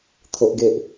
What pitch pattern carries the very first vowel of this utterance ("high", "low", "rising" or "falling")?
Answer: high